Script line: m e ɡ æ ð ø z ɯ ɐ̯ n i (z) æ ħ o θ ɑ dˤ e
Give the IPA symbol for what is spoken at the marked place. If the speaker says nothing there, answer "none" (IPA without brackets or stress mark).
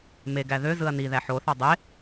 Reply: ð